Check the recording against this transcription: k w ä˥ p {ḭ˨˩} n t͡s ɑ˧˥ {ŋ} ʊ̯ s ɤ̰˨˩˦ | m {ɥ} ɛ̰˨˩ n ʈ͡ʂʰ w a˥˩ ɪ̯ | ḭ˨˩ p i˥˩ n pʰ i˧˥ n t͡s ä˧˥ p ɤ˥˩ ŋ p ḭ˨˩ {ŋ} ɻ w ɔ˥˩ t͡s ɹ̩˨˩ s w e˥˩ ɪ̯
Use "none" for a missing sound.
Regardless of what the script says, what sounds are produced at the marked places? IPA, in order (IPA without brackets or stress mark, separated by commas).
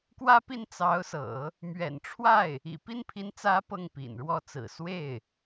i˥˩, none, ɥ, n